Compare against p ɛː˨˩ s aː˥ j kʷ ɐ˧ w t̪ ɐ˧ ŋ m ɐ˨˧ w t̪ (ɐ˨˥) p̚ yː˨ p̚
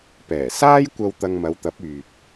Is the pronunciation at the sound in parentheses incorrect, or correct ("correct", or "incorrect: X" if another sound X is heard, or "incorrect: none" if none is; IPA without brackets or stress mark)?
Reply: correct